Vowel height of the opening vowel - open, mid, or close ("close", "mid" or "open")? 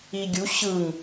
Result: close